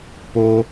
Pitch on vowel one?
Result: high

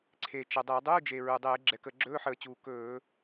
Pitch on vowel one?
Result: low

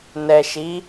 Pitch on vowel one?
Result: low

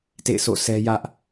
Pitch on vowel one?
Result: falling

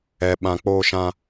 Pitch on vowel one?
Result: low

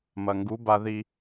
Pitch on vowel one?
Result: low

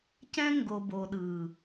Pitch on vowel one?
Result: high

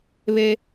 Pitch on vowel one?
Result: high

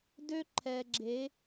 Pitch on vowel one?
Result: high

